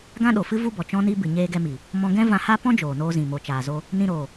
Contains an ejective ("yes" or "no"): no